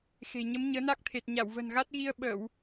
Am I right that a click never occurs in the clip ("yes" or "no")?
yes